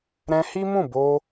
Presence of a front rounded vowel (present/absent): absent